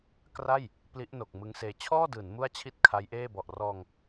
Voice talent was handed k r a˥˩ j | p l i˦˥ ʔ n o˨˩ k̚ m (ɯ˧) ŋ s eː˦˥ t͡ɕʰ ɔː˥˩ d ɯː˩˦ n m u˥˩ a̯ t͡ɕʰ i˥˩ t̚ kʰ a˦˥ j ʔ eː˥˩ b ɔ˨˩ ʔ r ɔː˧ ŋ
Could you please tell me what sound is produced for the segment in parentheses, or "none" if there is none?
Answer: ɯ˦˥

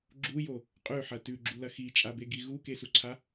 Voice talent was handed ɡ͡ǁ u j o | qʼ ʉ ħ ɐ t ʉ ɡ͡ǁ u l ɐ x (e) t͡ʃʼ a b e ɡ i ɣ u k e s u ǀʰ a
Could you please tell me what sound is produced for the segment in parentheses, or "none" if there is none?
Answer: i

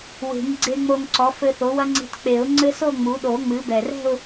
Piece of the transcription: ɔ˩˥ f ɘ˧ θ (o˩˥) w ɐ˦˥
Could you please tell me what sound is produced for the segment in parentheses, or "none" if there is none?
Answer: o˩˥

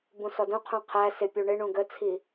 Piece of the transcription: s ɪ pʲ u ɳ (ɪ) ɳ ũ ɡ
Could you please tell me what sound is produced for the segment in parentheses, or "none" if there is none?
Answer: ɪ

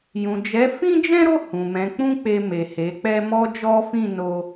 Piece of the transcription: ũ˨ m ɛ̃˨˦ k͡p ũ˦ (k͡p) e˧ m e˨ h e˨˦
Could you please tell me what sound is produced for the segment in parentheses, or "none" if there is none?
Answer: k͡p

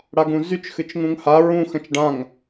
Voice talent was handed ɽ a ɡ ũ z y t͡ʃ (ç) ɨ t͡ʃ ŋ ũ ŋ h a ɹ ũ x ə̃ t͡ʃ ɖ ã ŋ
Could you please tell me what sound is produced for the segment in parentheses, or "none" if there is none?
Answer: x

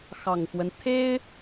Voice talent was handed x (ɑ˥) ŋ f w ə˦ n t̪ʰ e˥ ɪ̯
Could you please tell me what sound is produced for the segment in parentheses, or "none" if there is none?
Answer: ɑ˨˩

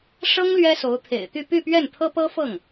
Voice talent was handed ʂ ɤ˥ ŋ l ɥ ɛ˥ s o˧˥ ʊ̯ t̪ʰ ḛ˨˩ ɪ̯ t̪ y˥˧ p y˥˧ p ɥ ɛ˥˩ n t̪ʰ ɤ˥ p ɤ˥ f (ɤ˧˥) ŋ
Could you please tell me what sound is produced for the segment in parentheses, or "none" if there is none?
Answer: ɤ˥˩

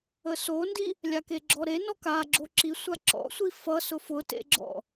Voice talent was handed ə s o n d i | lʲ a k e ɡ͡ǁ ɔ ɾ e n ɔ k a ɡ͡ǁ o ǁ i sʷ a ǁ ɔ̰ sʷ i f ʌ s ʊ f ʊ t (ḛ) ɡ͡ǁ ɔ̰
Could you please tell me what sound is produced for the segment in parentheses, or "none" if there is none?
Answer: ḛ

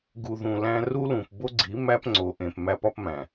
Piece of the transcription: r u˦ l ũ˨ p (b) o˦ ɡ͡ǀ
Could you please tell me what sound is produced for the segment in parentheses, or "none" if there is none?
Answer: b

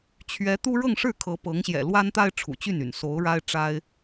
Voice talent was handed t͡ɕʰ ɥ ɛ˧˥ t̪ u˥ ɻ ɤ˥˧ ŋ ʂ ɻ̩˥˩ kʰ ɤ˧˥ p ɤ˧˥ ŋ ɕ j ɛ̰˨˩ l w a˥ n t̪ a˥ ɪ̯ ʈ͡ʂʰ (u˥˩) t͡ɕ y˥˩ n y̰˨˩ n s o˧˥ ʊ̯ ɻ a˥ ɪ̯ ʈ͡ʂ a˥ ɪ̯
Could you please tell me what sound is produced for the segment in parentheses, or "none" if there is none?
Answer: ṵ˨˩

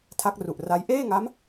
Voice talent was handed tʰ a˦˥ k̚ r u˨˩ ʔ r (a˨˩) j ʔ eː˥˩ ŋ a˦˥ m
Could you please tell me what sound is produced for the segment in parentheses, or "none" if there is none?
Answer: a˦˥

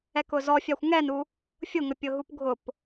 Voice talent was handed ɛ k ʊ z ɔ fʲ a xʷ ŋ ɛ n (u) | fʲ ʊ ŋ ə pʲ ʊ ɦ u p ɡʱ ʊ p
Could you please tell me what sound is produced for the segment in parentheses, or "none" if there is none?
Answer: u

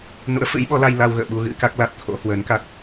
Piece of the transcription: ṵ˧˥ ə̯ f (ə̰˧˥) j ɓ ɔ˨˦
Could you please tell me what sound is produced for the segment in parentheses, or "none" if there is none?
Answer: ɨ̰˧˥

